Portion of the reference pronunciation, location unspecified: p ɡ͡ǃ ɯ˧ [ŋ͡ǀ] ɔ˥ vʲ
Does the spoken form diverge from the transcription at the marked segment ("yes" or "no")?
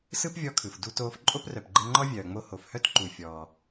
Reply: yes